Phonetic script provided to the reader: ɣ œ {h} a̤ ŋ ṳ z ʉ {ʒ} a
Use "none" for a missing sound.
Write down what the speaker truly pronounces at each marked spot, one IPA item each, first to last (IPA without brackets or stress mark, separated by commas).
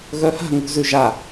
h, ʒ